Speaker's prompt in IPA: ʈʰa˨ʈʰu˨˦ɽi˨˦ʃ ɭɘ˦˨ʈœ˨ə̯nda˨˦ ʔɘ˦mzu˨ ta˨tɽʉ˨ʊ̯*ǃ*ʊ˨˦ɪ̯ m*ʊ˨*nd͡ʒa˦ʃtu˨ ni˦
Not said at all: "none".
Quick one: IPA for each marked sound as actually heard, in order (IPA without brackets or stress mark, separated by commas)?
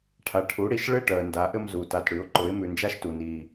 ǃ, ʉ˨